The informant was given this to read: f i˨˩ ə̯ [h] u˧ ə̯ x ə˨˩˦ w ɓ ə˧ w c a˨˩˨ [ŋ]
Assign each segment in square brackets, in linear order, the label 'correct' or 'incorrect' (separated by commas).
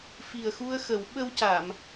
incorrect, incorrect